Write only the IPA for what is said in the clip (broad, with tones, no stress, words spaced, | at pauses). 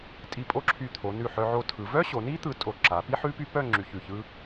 tʼi˧˩pʼo˥˧ǁʰy˧˩ t̪ʰo˩˧nʉ˧˩ ħœ˧ʕo˧tʰɯ˩˧ vœ˥ɕo˩˧ni˥ t̪ɯ˧tʼo˧˩ ǁa˩˧pi˥ħʉ˥py˥ pœ˥˧ ŋ͡ǁy˧çʉ˧˩çɯ˥